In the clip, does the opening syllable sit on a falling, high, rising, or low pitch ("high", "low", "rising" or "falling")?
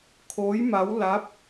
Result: rising